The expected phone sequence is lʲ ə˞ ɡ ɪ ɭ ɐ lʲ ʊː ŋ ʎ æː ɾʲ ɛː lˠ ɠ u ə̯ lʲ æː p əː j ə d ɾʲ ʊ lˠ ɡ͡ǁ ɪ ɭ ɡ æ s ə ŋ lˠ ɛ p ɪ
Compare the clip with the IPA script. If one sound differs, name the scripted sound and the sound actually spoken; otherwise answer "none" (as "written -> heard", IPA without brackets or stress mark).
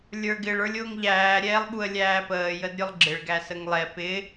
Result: ɐ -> ə˞